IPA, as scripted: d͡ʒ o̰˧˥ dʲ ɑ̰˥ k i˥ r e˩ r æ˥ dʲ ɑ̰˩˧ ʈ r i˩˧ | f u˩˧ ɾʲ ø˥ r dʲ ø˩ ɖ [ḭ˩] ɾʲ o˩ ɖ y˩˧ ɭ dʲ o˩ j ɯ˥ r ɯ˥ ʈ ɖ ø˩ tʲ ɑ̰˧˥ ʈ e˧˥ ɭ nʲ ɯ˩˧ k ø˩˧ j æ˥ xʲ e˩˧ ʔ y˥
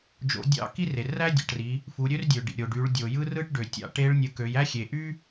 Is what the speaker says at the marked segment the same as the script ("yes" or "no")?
yes